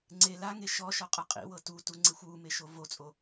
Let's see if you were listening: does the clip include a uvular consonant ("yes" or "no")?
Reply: yes